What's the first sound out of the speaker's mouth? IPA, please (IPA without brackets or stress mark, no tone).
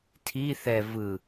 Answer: tʰ